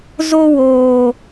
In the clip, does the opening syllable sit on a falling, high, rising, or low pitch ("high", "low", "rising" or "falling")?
high